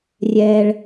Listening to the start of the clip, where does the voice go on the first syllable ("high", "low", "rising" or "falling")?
low